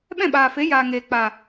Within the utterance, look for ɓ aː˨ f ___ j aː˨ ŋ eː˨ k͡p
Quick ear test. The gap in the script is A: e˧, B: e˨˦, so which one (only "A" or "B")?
B